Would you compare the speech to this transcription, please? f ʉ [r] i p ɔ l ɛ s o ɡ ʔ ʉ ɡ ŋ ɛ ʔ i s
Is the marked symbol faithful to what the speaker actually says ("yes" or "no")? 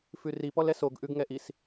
yes